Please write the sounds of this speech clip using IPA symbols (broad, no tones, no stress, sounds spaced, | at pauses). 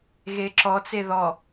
ɣ e ǁ ɔ t͡s e ð ɔ